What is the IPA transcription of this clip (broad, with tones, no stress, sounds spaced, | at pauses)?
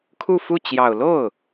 kʰ u˥˧ f u˥˩ t͡ɕ j ɑ˨˩ ʊ̯ l o˥˩ ʊ̯